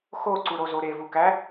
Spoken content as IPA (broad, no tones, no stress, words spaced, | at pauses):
xoǀuɾozo ɾevukæ